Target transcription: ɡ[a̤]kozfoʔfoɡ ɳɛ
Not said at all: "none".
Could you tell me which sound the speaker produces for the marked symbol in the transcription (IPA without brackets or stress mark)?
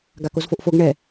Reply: a